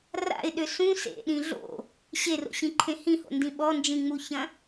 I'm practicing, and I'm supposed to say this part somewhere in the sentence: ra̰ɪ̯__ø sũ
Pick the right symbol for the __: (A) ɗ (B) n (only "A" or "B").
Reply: A